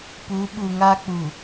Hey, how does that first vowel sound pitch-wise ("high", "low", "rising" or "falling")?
rising